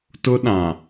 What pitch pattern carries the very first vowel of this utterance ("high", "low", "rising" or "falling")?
high